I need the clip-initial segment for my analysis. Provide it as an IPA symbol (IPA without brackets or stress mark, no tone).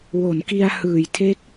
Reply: w